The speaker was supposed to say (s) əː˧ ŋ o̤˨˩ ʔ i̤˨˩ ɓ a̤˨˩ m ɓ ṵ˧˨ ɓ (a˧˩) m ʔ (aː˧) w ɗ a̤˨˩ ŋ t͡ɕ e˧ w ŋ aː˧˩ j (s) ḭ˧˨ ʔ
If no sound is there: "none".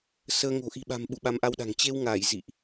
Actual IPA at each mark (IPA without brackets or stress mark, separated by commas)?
s, a˨˦, a˧, z